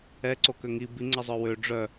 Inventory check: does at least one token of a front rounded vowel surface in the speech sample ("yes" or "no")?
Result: yes